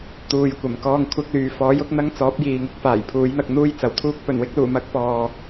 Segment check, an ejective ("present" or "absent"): absent